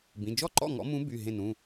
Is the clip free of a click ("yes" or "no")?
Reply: no